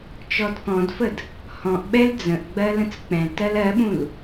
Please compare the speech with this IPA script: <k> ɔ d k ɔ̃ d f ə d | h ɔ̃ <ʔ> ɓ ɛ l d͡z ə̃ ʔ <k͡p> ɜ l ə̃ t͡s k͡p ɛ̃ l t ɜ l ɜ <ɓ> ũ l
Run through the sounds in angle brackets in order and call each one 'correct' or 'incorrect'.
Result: incorrect, correct, incorrect, correct

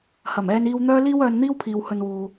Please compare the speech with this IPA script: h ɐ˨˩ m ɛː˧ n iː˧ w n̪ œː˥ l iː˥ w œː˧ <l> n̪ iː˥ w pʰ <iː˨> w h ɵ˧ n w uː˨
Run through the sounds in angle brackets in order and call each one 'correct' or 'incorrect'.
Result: incorrect, correct

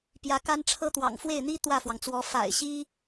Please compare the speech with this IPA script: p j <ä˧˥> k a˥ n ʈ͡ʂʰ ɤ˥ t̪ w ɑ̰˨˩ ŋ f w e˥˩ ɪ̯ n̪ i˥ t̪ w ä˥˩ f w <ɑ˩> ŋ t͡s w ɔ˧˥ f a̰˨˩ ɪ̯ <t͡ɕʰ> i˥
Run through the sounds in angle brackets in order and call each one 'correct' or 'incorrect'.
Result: correct, correct, incorrect

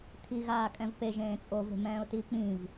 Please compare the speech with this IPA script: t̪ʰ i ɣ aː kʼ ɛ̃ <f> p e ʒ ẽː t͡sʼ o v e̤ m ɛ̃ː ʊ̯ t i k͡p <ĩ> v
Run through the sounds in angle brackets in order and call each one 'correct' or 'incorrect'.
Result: incorrect, correct

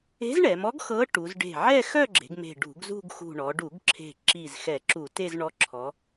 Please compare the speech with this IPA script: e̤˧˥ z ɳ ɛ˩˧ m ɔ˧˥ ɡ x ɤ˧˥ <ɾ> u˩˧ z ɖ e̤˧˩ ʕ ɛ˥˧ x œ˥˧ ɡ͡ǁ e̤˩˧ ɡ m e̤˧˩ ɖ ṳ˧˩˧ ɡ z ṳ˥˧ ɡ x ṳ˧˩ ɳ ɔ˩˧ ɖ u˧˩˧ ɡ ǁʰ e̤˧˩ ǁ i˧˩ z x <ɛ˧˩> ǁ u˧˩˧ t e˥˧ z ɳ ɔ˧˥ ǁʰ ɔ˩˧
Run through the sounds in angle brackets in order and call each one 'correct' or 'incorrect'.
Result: incorrect, incorrect

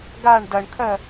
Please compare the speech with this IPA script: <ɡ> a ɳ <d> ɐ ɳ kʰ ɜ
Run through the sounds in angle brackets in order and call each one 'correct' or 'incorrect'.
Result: correct, correct

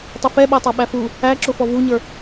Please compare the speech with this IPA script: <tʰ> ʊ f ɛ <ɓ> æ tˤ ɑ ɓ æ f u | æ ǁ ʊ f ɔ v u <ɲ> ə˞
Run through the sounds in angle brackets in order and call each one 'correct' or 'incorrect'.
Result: incorrect, correct, correct

